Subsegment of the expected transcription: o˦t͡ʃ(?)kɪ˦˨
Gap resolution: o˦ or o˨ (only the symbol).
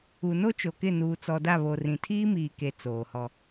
o˨